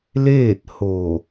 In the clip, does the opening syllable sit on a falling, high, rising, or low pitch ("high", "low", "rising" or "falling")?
falling